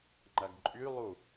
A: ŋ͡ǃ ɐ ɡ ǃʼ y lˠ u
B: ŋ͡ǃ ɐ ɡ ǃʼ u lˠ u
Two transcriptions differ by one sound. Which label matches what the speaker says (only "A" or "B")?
A